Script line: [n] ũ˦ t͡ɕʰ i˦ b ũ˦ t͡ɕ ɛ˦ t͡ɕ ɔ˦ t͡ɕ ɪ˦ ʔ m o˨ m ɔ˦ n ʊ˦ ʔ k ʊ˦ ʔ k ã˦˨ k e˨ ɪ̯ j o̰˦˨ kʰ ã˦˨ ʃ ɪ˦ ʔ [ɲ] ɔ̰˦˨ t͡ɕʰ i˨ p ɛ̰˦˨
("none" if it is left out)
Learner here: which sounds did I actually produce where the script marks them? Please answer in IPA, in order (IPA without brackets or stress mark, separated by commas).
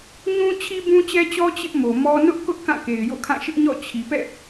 ɲ, ɲ